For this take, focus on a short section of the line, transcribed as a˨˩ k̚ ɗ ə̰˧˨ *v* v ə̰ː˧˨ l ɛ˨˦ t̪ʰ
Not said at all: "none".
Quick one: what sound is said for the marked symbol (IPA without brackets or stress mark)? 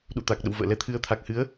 w